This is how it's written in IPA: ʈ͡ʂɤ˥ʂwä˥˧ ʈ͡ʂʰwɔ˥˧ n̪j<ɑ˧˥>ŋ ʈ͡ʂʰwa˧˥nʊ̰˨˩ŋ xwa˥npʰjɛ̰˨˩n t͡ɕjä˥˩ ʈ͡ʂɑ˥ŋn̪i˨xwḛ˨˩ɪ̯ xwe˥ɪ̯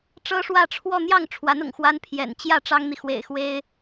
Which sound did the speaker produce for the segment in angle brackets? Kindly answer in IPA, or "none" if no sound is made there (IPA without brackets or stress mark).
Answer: ɑ˥˩